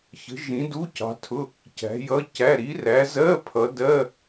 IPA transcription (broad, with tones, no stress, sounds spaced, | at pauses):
ç ə̤˨˦ ʒ ĩ˨˦ d u˧˥˧ c ɑ̤˨˦ tʰ ʊ˧˥˧ | c æ̤˨˦ j ʌ˧˥˧ c æ˧˥˧ ɾ i˨˦ r æ˨˦ z ɜ˧˥˧ pʰ ʌ˨˦ d ɜ˧˥˧